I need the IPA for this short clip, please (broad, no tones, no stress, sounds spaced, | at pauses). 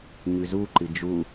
ɲ ʉ z u ǃ ɨ d͡ʒ u